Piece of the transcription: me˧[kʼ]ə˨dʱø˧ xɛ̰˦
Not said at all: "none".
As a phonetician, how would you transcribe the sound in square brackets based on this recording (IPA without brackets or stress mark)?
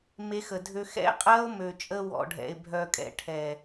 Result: x